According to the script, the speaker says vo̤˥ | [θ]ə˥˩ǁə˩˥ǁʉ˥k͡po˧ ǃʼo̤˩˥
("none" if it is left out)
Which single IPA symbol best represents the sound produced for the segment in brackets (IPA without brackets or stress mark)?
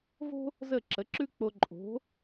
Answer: z